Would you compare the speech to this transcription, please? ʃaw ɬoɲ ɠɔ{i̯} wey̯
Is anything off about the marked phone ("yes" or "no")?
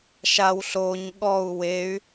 yes